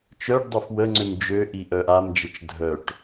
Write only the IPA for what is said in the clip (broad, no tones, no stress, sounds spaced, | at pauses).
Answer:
t͡ʃ œ ɖ dˤ œ f w ə ŋ͡ǀ ø m d͡ʒ ø ʔ i ʔ œ ʔ a m d͡ʒ ə t͡ʃ dʱ œ ʈ